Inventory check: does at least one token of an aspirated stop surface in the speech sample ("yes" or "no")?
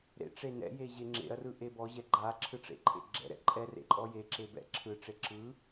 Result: yes